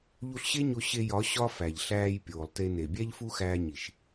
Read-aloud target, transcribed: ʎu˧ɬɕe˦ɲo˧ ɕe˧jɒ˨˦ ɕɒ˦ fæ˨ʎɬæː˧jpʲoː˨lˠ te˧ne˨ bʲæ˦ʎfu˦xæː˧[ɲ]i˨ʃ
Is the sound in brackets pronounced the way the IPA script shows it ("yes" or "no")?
yes